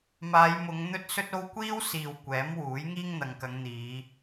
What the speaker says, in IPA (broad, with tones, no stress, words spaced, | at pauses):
maː˨˧jmʊ˨˧ŋ n̪ɵ˥t̚sɵ˥t̚o˥w kʷiː˥wsiː˨w kʷɛː˨˥m wuː˨˥jŋiː˥ŋn̪ɐ˨˧ŋkɐ˨˧ŋ n̪iː˨˧